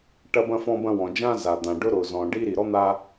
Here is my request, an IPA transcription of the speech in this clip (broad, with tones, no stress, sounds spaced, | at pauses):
ʈ ɐ˥ b ɐ̃˥ f ɔ̃˥ b ɐ̃˥ w ɔ̃˩ d͡ʒ ã˥ z a˩ d̪ ã˩ ɖ ʊ˥ ɾ ʊ˩ z ɔ̃˩ ɖ i˥ ɾ i˩ ɾ ɔ˥ n̪ a˥